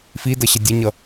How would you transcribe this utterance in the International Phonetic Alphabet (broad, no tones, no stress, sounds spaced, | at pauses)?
f i d ʌ ɕ ʌ dʲ ə ɲ ʌ